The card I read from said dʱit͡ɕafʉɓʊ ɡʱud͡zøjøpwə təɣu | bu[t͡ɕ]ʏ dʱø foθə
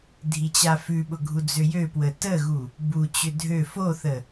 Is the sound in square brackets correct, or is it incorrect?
correct